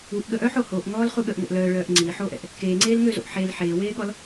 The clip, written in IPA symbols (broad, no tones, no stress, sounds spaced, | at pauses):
u ʔ ɠ ə ʔ œː ħ o h oː ʔ ŋ ɔː l χ u ɠ ə ʔ ŋ o̰ ʔ l œː ɭ œː ʔ ŋ͡ǀ iː ħ oː ʔ ɛ̰ ʔ | k eː ŋ͡ǀ eː l ŋ ø z o̰ ʔ ħ e l ħ eː w eː ɠ ɔ l